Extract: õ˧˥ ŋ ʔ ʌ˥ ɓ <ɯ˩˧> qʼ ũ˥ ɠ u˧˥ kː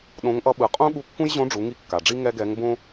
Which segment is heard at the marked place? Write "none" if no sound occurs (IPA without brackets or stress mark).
ɯ˩˧